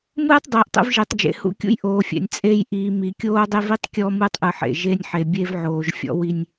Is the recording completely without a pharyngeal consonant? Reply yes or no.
no